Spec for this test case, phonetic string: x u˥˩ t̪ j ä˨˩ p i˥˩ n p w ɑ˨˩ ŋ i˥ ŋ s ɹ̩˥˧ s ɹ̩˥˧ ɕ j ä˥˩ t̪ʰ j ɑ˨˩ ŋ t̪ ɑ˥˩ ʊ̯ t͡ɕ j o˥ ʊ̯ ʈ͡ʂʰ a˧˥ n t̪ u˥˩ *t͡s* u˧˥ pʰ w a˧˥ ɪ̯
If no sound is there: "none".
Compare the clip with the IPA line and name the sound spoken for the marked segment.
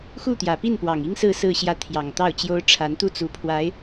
t͡s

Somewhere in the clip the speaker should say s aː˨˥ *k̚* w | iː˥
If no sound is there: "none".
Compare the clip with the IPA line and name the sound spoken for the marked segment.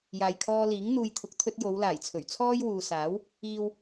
none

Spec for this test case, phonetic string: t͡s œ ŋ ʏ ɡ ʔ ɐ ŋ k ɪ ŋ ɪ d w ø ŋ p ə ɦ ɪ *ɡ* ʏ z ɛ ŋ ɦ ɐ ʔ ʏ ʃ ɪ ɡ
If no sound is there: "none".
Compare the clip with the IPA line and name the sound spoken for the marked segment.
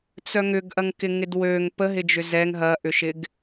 d͡ʒ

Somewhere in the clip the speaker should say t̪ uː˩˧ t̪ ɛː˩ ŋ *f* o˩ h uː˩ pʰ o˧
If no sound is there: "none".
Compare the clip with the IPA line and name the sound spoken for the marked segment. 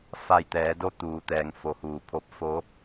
f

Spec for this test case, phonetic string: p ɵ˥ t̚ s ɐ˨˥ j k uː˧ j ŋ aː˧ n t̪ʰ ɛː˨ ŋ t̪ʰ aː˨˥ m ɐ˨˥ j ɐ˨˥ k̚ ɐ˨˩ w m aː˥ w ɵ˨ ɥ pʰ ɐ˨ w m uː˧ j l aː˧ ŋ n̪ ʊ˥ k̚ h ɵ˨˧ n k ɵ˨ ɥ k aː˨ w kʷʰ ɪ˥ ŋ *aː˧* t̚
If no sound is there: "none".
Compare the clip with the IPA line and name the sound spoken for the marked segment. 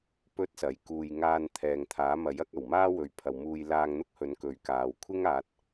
aː˨˥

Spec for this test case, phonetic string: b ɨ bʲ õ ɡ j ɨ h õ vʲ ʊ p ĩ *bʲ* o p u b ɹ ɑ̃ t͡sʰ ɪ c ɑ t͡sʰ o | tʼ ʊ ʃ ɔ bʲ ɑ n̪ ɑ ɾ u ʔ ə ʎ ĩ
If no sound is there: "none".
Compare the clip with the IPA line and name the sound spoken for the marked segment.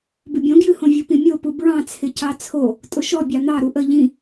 mʲ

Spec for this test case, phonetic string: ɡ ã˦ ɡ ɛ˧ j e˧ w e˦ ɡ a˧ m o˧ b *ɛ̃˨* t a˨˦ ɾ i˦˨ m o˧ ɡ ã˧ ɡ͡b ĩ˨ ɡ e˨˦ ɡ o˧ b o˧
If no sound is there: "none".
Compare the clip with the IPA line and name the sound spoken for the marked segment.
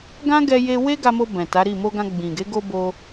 ɛ̃˨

